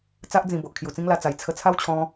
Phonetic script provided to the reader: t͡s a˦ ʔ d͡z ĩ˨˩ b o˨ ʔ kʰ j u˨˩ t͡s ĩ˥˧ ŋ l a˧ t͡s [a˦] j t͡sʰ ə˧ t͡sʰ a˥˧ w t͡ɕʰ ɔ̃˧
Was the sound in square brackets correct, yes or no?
no